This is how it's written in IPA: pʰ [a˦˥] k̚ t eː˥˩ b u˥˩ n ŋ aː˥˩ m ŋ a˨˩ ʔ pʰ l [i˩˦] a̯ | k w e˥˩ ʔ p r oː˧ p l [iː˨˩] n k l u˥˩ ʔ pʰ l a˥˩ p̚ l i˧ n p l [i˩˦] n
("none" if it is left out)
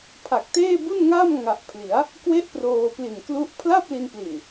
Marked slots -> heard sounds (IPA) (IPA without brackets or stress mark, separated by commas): a˨˩, i˩˦, i˨˩, i˨˩